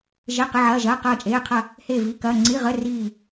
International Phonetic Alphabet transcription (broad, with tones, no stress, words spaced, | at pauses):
ʒe˧˥˧ qi˧˥˧ʕɐː˧˥˧ʒɐː˧˥˧ qɐː˥˧t͡ʃʼeː˧˥˧ qʰɐ˥˧ | heː˥˧vi˧˥˧kɐː˧˥˧ ŋ͡ǀi˧˥˧ ʁə˧˥˧ riː˥˧